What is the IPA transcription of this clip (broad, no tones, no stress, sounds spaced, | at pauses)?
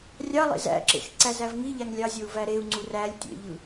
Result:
rʲ ɑ lˠ ḛ z æ̰ ǁ ḛ x ǀ æ z æ v ŋ i ʎ æ ŋ lʲ ɑ zʲ o u̯ v æ ɾ e u̯ ŋ͡ǀ u r æ lʲ tʲ ḛ ʎ ɯ